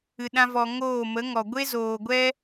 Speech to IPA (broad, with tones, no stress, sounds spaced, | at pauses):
ɨ˧ ɗ ã˦ v ɔ˧ ŋ oː˦˨ m ə˨˦ ŋ ɔ˨ ɡʷ e˦ z oː˨ ɡʷ ɛ˦